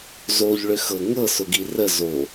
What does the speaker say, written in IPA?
z o ʎ ɭ ʏ x ɤ ŋ ɤ s ʊ ɡ i r ə z o

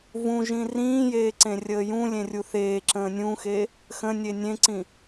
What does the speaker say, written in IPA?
v ũ ʒ ĩ r ĩː j eː ǀ ẽ rʲ əː j ũ lʲ ẽ rʲ u θ eː ǁ ə̃ː nʲ ũ x e | x ə̃ nʲ e nʲ ẽ ǀ ĩ

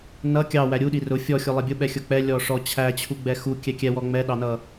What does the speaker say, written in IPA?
n ʌ kʲ ɑ w æ ɾʲ u ɗ i r ʊ fʲ ɔ xʲ ʊ lˠ ɛ bʲ ʊ ɓ ɛ xʲ ʊ k͡p ɛ lʲ ɔ ʂ ɔ t͡ɕʰ æ t͡ɕʰ u ɡ͡b ɛ x u kʲ ɛ kʲ ɛ w ɔ ŋ͡m ɛ ɗ ɑ n ʌ

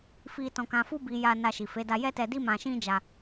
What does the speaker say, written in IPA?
f i˧ t ɔ̃˧ k ã˧ f u˦ b i˧ j a˧ n a˧ ʃ i˨ f e˨˦ d a˧ j ɛ˦ t ɛ˧ d i˦ m ã˧ ʃ ĩ˦ d͡ʒ a˧

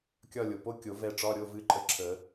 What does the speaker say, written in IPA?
kʲ ɒ˦˨ lʲ o˩ p o˧˥˧ kʲ o˨˩˦ v ɛ˦˨ ʈ͡ʂ ɒ˧˥˧ ɾʲ o˧˥˧ v ɨ˧˥˧ ǃʼ ə˧˥˧ ǁʰ ə˨˩˦

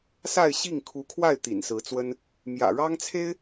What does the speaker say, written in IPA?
s a˥˧ ɪ̯ ɕ i˥˩ ŋ kʰ u˧˥ kʰ w a˥˩ ɪ̯ t̪ ḭ˨˩ n s ɹ̩˧˥ t͡s w ə˥ n | m j ä̰˨˩ ɻ ɑ˥ ŋ t͡sʰ e˥ ɪ̯

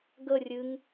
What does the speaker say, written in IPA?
ɡ ə rʲ ɨ ŋ

